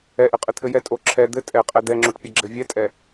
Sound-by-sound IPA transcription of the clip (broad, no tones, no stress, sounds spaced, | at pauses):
ɛ ʔ ɘ qʼ ɘ t̪ʰ ɘ j ɛ tʼ o ǁʰ ɛ d̪ ɘ tʼ ɛ qʼ ɛ d̪ ɛ ŋ͡ǁ o ʈ pʲ ɐ ɡ͡ǁ ɘ vʲ ɛ tʼ ɛ